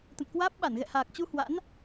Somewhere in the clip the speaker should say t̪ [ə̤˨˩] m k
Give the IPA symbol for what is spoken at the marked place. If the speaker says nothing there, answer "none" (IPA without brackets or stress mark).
ə̰˧˨